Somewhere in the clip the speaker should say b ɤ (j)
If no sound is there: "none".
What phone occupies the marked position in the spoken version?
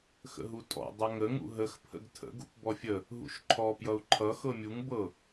none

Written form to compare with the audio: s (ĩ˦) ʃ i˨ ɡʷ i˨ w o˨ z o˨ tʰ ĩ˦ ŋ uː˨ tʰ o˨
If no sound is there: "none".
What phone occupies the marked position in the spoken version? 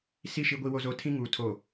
i˦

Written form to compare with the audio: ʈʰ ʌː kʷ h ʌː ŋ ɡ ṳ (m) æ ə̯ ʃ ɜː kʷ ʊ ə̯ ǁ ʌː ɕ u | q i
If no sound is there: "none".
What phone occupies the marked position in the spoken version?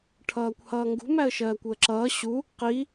m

